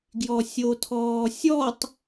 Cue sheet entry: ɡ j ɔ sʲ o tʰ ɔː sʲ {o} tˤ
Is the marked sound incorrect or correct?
incorrect